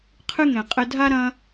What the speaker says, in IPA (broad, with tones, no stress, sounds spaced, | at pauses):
qʰ ɨ˥ ŋ ɛ̃˨ qʼ ɘ˦ dʱ a˥ ɾ ɐ̃˦